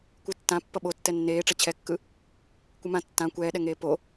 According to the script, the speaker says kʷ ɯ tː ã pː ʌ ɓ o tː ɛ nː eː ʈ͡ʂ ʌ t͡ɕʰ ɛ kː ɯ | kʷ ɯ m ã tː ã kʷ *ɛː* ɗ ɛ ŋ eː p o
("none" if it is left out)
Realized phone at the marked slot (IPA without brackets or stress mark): ɛː